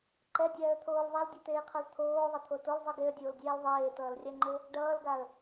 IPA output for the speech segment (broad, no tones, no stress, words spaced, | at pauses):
ǃɛdʲɛːə̯t̪ʰoːl ðˤɛldʲʌteːqʰʌl t̪ʰoːðˤʌt̪ʰo tolzˤɯ ɡeə̯dʲoːldʲɛːl ðˤeːtʌːlrʲaŋ͡ǃo | ɖʌːlɡaə̯